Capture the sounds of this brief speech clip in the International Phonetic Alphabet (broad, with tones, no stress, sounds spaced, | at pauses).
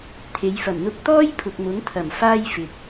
t̪ʰ e˨˥ j f ɐ˨˩ m n̪ ʊ˧ k̚ t̪ ɔː˥ j pʰ ʊ˨ k̚ m ʊ˨˥ ŋ t̪ʰ ɐ˨˩ m f aː˥ j f ɪ˨ k̚